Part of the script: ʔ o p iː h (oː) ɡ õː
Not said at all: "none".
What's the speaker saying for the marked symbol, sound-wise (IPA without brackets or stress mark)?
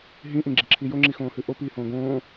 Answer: õː